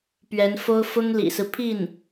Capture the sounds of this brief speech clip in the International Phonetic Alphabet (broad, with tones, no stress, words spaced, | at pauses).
pɥɛ˧˥nfo˥ʊ̯ fʊ˥ŋlḭ˨˩sɹ̩˦pʰi˥˩n